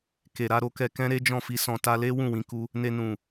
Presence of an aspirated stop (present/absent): absent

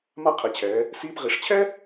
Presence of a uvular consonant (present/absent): present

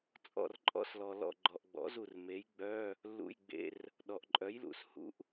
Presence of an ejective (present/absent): present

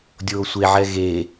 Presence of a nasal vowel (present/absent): absent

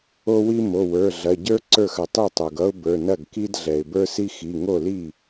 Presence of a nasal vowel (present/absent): absent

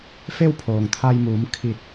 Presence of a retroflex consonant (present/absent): absent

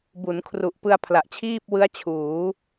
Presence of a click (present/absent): absent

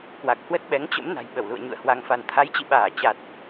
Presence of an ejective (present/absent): absent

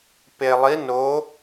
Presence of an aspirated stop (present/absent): absent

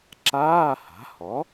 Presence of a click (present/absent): present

